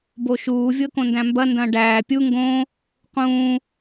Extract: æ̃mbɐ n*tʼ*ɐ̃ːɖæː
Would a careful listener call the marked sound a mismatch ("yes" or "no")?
yes